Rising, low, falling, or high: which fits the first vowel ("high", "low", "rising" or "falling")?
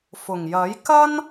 low